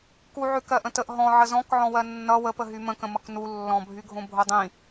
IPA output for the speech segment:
kuʕʉkɜ ʔə̃təʔ ɦɔ̃ ʕəzɔ̃kʕɔ̃ wɜnːʌ wəpəɦy mə̃kə̃mʌk nu lːɔ̃bʱyɡʱõ bʱodˤĩ

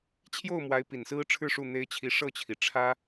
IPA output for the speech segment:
t͡ɕʰjo˥˩ʊ̯mwa˧˥ɪ̯ pi˨˩nsɹ̩˥ ʈ͡ʂʰɻ̩˥˧ ʂu˥˩n̪e˥ɪ̯ t͡ɕʰi˧˥ʂɤ˥˩t͡ɕʰi˩ ʈ͡ʂʰä˥

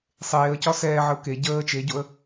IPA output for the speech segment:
sˤeːə̯cɒ sɛːʕəʊ̯ ke ɟəː t͡ʃeɟoə̯

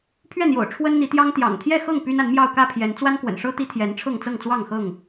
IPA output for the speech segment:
pʰɥɛ˥˨n̪jo̰˨˩ʊ̯ ʈ͡ʂʰwə˦nn̪i˨˦t̪jɑ˦ŋ t̪jɑ̰˨˩ŋ t̪ʰjɛ˥˨xɤ˥˨ŋ py˦na˨˦nmjɑ˥˨ʊ̯ kä˥˨pʰjɛ˨˦n t͡swa˦nkwə̰˨˩nʂɤ˦ t̪i˦t̪ʰjɛ˨˦nʈ͡ʂʰɤ˥˨ŋ t͡sɤ˥˨ŋt͡swɑ˥˨ŋxɤ˥˨ŋ

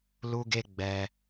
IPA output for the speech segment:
lu˦ɡe˦ ɡ͡bɛ˧

